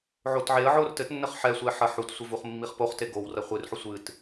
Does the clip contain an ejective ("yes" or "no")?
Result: no